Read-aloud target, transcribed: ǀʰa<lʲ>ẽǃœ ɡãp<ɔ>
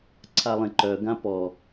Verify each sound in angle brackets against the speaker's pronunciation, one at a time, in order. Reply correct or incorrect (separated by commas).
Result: incorrect, correct